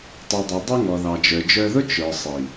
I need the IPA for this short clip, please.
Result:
tˤ u˨ dˤ i˨ dˤ u˧ ŋ ɔ˨ ð ɑ˨ d͡ʒ ə˞˨ d͡ʒ ə˞˧ ð ʊ˦ t͡ʃ ə˞˨ sˤ i˨

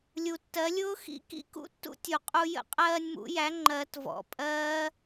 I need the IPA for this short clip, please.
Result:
lʲ u˩ tː ɜ˩˥ lʲ ʊː˦˥ x ḭ˦˥ k ḭ˦˥ k ṵ˦˥ tː ṵ˦˥ tʲ u˩ qʼ u˧ j ə̰˦˥ qʼ ɜː˧ nʲ m ṵ˨˩˦ j æ˩˥ ŋ͡ǃ ɜ˨˩˦ t v ɔ̰˩˥ pʼ ɜː˦˥

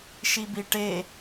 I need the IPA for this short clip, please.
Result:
ʃ i b i ʈ e

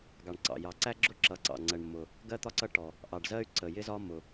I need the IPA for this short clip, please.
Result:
ɡ ɑ˩ ɳ ǀ ɑ̰˩ j ɑ˩ ǀ æ˥ ɡ͡ǁ ʊ˥ ǁ ʌ˩ ǀ ɑ̰˩ ŋ͡ǀ ɜ˩ ɳ mː ʊ˩ | ɡ ɜ˥ t̪ ɒ˥ ǀ ʌ˥ ʈ ɔ˩ | ʔ ɑ˩ ɖ z ɜ˥ y̯ ǀ ə˩ j ɪ˥ z ɒ˥ m ʊ˩

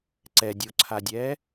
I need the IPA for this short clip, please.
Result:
ǀ ɛ dʲ o ǀʰ a dʲ ɛ

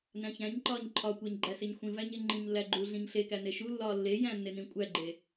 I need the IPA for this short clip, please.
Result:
n æ̃ ç æ̃ ɲ ǃ ɒː ɲ ǃʰ ɒ kʷ æ ɲ ɡ͡ǃ æ s e ɲ xʷ ĩ v æ ɲ e ŋ͡ǃ ĩ ɲ lː æ ɡ͡ǃ u ɮ ĩ ɲ ɬ e k æ n e ʃ u lː ɒː lː e j æ̃ nː e n ĩ kʷʼ æ ɡ͡ǃ e

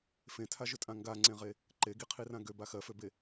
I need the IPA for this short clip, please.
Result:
f ẽ tʰ a ʒ ʏ tʼ ã ŋ ɡ a ŋ͡ǀ ẽ ʁ e | ǃ e ɡ i qʰ i r ã ɡ ø b a x ɜ f ø b e

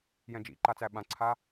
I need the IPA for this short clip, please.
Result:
j ɛ̃ d͡ʒ ḭ ǃ a t͡s æ ɓ ã ǀʰ a

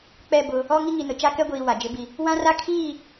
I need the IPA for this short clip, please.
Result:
k͡p ɛ˦˨ b ʊ˦ | ɔ˦ ŋ i˦ ŋ i˨ n ʊ˨ t͡ʃ a˦ k ɛ˦ ɡʷ iː˨ w a˨ d͡ʒ ɪ˦ b i˦ | w ã˦ r a˦ kʰ iː˦˨

